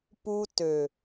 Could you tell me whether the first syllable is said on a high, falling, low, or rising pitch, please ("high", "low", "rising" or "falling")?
high